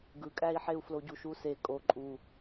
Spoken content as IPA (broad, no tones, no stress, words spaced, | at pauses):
ɡɯkʼæi̯ħeu̯ floɟuʃuse kʼo ǃʼu